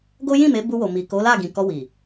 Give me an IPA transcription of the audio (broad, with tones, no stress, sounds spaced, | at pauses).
ɡ o˦ j ĩ˦˨ m e˨˦ b u˧ w o˨ m i˨ k o˨˦ l a˦˨ ɡ ĩ˨ k ɔ˧ w i˨